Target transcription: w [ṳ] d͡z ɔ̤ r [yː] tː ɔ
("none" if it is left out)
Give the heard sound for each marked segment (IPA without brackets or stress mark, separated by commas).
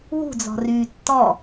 ṳ, yː